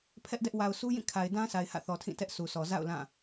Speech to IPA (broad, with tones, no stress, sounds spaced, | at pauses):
pʰ ɛ˦ ʔ d ɛ˦ ʔ w a˨ ʊ̯ s u˦ j ĩ˦˨ kʰ a˨ ɪ̯ d ã˦ s a˨ ɪ̯ h ä̰˦˨ θ ɔ˨ tʰ ĩ˦˨ t ɛ˦ ʔ s u˨ s ɔ˨ z a̰˦˨ ʊ̯ l ã˦˨